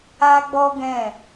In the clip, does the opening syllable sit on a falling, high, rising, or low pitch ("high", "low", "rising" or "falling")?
high